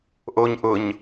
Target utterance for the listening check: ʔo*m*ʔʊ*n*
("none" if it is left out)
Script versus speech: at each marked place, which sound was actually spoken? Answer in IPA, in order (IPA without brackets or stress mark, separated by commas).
ɲ, ɲ